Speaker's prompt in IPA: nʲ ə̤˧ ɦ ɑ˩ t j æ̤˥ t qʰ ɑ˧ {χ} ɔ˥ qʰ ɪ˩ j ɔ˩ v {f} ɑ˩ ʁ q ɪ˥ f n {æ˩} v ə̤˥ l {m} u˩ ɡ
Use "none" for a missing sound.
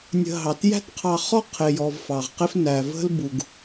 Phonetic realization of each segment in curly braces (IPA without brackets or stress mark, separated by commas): χ, f, æ˩, b